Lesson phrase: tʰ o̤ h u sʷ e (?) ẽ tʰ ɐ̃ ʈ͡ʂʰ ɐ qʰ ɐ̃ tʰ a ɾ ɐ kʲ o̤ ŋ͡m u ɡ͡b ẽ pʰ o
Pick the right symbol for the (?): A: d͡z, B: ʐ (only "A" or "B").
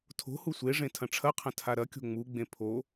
B